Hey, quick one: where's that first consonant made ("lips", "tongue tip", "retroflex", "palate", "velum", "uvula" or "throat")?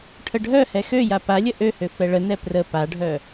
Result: retroflex